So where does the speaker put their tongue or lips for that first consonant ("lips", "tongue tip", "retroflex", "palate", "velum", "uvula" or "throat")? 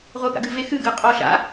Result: uvula